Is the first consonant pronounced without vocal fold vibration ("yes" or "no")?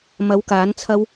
no